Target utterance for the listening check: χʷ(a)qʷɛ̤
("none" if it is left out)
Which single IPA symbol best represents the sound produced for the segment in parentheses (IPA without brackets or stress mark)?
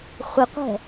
ə